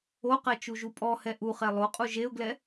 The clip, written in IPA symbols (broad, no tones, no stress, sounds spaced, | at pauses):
o q ɛ t͡ʃ u ʒ u pʼ ɔ h ɛ ʔ u χ ɛ lˠ o qʼ u ʒ e ʊ̯ ɡ l ɛ